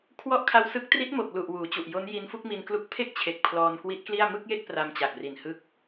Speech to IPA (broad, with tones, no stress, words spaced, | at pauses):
kʰwɔ˦˥ʔ kʰa˦˥wsɯ˦˥k̚ tri˦˥t̚mo˨˩k̚lu˨˩ʔ wuː˩˦t͡ɕu˨˩ʔjo˦˥n ji˧nfu˥˩k̚mi˧nklu˦˥k̚ pʰe˥˩k̚t͡ɕʰe˨˩k̚ pʰlɔː˧nkwi˦˥t̚kli˥˩a̯ mɯ˥˩k̚je˥˩k̚ pra˧mt͡ɕa˨˩k̚ri˨˩n hɯ˦˥k̚